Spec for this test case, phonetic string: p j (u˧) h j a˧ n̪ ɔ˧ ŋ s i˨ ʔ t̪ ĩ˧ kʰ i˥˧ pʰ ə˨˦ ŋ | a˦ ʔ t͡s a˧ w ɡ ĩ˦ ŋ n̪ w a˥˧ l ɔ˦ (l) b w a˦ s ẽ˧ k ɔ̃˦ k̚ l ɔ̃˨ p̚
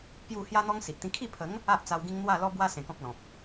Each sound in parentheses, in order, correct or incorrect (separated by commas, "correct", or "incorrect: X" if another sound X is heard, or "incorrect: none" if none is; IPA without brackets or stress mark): incorrect: u˥˧, incorrect: none